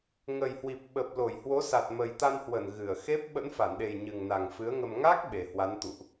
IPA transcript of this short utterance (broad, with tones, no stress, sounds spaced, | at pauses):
ŋ ə˨˩ j h w i˨˩ p̚ ɓ ə˨˩ p̚ l o˧˩ j h w o˨˦ s a˨˩ t̚ m ə˨˩ j t̪ a˧ n h w ə˧˩ n ɣ ɨ˧˩ ə̯ x e˦˥ p̚ ɓ ə̰˧˥ n f a˧˩ n ɗ e˨˩ j ɲ ɨ˨˩ ŋ n a˨˩ ŋ f ɨ˨˦ ə̯ ŋ ə˧ m ŋ a˦˥ k̚ ɓ e˨˩ h w a˨˦ n t̪ ṵ˧˨ ʔ